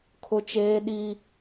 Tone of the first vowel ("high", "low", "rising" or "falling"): high